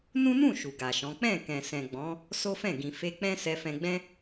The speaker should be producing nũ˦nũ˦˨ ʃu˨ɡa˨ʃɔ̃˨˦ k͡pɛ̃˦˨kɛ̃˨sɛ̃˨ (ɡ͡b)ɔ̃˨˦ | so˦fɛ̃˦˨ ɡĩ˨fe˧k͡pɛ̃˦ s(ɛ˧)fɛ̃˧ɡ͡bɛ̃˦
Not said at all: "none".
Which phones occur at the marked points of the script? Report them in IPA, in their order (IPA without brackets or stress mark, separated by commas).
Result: ɡ͡b, ɛ˧